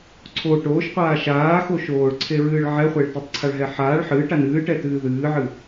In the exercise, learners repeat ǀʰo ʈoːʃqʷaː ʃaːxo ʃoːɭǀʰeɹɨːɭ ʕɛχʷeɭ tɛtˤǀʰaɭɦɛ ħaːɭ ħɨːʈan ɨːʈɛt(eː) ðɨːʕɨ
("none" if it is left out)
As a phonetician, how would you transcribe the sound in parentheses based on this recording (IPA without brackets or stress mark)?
ɨː